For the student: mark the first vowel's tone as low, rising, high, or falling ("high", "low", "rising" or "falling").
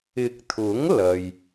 low